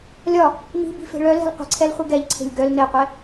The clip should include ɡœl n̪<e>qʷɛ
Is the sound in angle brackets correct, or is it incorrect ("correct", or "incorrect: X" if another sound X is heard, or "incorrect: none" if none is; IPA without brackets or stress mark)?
correct